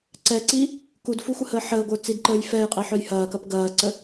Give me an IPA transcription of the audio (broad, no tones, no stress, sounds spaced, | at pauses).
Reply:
ǀ ɛ ǀ i | k u d f u xʷ ə h ə ħ əː ɡʷ ə˞ t͡s i d ǃ əː j f ɛ j qʼ i ħ œ j h ɐː k ɐ p ɡ ɐː ǀ ə